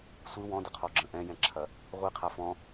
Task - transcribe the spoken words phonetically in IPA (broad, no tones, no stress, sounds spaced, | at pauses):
sʷ ɨ w ɔ̃ d ə qʰ ɔ ɡ͡ǁ ə̃ ʔ ɛ̃ j ɛ̃ ǁʰ ɐ | ʁʷ i qʰ a f ɔ̃